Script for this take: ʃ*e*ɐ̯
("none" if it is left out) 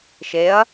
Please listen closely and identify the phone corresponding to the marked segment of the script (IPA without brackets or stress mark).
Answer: e